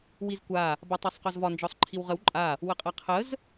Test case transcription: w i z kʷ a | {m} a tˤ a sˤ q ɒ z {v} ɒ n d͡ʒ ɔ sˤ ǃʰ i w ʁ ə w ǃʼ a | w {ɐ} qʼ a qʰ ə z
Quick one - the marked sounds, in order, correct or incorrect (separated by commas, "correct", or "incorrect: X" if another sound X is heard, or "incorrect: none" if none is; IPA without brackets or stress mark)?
incorrect: b, correct, incorrect: ə